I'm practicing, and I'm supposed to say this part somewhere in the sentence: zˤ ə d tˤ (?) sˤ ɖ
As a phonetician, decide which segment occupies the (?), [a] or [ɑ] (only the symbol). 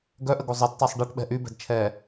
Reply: a